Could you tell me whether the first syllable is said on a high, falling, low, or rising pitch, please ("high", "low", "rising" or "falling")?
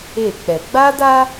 falling